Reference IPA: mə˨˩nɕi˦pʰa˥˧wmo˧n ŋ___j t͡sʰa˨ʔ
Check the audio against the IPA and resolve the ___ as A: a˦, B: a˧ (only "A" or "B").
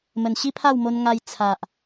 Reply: B